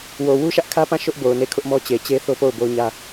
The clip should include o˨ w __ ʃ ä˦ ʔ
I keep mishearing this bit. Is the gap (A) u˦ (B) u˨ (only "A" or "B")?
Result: A